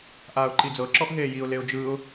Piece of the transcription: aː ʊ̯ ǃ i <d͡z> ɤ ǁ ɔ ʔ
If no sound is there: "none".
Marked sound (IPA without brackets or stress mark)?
d͡z